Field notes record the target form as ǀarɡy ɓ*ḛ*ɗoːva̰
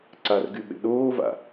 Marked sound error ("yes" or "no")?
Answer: no